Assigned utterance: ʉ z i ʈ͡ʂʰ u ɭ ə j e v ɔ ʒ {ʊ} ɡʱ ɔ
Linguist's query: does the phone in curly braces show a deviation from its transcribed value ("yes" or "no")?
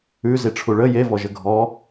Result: yes